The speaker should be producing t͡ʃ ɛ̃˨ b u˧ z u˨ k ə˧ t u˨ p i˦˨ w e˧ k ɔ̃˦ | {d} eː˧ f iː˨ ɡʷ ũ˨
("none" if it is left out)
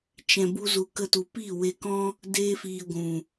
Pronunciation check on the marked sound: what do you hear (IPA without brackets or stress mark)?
d